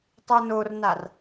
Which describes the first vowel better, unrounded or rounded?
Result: unrounded